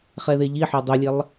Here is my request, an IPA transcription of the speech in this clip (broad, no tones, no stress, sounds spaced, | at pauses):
χ ɛ ð e ʎ i ħ o dˤ u lʲ ɛ lˠ